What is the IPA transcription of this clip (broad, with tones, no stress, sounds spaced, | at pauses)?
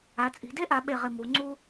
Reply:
a˩˧ t͡sʼ i̤˩˧ d e˥ ʔ a˩˧ ɓ e˧˩ ʁ ɪ˧˩ m u˩˧ ŋ͡ǀ u˧